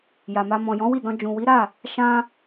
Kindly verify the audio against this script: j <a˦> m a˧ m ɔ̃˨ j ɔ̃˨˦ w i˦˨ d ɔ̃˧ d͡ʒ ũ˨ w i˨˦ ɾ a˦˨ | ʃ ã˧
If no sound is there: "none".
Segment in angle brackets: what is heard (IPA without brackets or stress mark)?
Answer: a˨